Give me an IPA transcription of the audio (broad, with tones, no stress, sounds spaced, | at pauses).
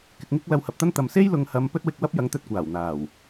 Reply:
k ɪ˧ k̚ ŋ ɪ˥ k̚ l ɐ˧ w h ɐ˨ p̚ t̪ ɐ˥ n t̪ ɐ˨ m s e˥ j l ʊ˨ ŋ h ɐ˨˧ m p ɵ˥ t̚ w ɪ˧ k̚ w ɐ˥ p̚ j ɐ˨˥ ŋ t̪ ɵ˧ t̚ kʷ aː˨˩ w n̪ aː˨˩ w